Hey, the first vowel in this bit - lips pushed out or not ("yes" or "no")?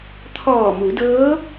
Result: yes